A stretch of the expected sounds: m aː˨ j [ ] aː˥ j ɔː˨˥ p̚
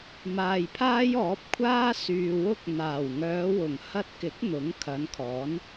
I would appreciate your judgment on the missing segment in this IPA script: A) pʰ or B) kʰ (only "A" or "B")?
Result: A